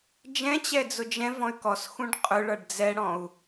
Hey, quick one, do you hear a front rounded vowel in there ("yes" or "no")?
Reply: yes